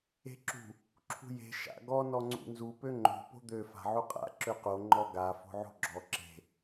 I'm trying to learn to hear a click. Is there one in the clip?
yes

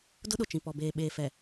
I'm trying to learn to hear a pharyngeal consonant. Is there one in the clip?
no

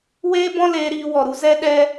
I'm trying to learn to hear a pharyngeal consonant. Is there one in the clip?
no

